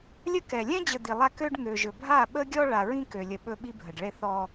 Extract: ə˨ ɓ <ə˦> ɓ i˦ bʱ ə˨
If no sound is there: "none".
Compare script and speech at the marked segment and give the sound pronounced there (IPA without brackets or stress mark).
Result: ɵ˦